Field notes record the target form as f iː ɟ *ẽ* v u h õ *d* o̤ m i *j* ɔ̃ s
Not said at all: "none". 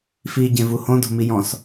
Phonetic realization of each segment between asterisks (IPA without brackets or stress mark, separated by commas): ẽ, d, j